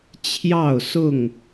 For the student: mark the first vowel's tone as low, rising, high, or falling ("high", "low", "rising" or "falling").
falling